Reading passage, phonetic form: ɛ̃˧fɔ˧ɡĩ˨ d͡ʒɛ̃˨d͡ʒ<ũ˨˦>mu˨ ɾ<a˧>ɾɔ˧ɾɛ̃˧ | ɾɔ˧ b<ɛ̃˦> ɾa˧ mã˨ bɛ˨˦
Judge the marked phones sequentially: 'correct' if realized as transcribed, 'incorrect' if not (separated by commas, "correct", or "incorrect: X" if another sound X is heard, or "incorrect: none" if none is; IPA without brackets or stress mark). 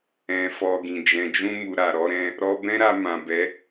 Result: incorrect: ũ˧, incorrect: a˨, correct